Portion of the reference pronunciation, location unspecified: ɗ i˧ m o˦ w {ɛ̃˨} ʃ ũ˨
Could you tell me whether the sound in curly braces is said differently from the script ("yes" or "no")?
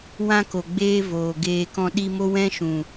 yes